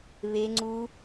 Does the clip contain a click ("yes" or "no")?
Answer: yes